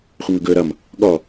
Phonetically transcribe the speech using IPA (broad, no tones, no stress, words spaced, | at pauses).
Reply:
χʷəŋɵɡɵːɾʌm | ɠɔ